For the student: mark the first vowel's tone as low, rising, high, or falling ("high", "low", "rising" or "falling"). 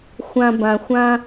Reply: low